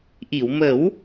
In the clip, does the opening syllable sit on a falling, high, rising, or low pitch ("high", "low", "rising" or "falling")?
low